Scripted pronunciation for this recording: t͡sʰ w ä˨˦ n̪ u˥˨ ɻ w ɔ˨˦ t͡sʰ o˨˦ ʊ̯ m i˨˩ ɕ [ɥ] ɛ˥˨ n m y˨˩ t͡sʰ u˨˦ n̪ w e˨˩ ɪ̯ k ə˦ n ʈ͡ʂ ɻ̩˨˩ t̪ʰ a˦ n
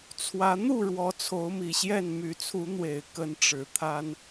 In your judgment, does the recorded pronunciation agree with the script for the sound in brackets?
no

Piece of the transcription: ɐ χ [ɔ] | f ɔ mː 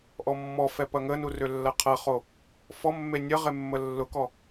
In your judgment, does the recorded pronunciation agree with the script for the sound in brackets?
no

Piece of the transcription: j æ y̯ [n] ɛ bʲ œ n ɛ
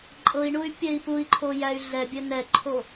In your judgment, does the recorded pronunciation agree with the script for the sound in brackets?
no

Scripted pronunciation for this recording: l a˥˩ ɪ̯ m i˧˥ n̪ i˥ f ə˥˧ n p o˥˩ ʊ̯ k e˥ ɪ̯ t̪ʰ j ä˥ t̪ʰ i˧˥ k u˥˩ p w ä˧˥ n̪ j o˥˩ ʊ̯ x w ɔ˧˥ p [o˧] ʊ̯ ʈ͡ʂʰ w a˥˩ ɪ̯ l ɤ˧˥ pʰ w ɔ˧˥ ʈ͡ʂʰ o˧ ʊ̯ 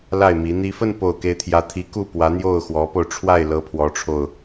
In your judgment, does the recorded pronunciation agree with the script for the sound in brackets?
yes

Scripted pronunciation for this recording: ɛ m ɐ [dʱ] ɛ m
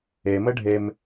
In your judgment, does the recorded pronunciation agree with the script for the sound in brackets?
no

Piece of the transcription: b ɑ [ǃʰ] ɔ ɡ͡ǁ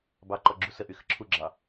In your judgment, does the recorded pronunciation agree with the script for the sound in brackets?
no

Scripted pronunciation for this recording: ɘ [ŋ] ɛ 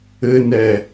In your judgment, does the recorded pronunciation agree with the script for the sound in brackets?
no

